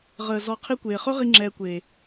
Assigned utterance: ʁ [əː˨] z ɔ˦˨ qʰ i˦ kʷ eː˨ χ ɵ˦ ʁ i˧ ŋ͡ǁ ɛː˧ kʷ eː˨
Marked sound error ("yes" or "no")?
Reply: no